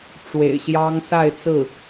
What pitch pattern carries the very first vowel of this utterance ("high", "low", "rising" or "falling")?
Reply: low